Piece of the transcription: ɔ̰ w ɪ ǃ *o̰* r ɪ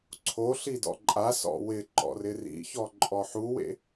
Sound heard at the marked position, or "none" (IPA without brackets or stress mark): ɔ̰